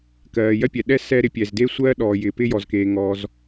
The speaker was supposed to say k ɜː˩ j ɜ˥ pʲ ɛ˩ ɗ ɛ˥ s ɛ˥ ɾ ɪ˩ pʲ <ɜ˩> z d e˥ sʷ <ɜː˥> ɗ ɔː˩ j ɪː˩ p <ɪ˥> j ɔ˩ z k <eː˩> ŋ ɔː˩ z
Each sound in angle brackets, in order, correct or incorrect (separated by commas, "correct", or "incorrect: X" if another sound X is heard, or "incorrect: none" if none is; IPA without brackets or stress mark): incorrect: ɛ˩, correct, correct, correct